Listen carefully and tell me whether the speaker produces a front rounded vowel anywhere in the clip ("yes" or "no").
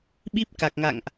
no